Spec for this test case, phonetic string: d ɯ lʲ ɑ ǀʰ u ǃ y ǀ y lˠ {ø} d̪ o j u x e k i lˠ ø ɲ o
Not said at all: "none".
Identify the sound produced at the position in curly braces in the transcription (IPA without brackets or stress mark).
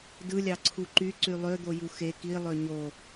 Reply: ø